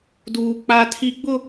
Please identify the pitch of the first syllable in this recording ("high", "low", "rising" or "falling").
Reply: high